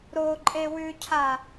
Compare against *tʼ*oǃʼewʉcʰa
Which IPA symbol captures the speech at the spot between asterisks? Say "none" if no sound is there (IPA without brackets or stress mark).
ɾ